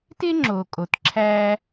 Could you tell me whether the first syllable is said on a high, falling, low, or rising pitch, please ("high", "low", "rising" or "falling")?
high